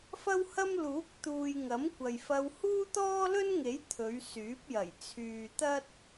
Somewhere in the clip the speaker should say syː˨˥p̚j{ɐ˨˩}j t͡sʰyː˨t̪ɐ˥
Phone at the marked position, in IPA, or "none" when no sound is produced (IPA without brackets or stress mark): ɐ˨˩